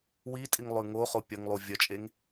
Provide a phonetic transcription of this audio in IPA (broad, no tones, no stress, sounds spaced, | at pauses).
w i tʼ i ŋ lˠ ʉ ŋ o χ o pʲ ɐ ŋ lˠ u vʲ ɐ t͡ʃʼ e ŋ